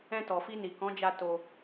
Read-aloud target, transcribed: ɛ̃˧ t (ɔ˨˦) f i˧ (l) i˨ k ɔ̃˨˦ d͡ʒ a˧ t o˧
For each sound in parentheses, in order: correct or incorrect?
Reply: incorrect, incorrect

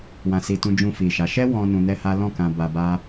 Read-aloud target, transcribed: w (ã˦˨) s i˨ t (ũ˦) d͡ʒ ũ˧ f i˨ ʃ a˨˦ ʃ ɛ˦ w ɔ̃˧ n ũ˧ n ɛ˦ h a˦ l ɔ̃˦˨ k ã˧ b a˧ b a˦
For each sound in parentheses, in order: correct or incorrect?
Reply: incorrect, incorrect

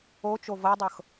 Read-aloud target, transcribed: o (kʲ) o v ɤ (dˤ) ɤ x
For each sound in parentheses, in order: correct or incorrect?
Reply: incorrect, correct

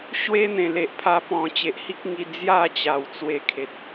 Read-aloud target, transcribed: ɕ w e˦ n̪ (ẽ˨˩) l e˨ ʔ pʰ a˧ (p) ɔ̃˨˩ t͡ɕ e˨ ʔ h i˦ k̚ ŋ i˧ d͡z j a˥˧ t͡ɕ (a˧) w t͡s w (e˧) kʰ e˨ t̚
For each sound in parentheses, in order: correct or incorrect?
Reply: correct, correct, incorrect, correct

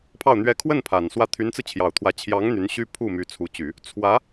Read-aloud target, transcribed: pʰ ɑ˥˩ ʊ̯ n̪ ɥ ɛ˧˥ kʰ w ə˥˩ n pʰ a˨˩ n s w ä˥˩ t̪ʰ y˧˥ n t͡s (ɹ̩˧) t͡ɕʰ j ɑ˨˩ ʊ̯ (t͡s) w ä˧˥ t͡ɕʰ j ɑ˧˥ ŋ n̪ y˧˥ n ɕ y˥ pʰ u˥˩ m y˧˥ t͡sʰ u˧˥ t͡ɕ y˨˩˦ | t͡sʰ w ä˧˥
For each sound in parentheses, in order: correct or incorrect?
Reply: correct, incorrect

